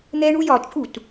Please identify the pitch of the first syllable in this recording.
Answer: high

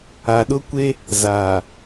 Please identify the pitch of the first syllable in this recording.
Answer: low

